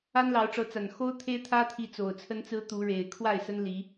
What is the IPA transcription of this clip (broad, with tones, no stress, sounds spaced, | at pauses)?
a˦ n l ɑ˨˦ ʊ̯ ʈ͡ʂ ɤ˨˦ t͡s a˨˩ n x o˦ ʊ̯ t̪ʰ e˦ ɪ̯ t̪ʰ ä˦ t̪ʰ i˨˦ t͡s o˨˩ ʊ̯ t͡sʰ ə˦ n t͡s ɹ̩˦ t̪ u˨˦ ɻ e˨˩ ɪ̯ kʰ w a˥˨ ɪ̯ s ə˦ n l i˨˦